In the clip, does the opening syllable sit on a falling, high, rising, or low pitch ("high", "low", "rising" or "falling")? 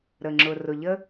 low